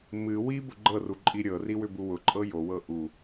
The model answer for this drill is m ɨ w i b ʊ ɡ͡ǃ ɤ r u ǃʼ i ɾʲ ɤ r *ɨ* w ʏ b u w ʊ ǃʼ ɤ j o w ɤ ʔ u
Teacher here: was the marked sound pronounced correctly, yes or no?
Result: no